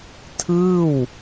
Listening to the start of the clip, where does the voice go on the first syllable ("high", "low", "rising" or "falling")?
falling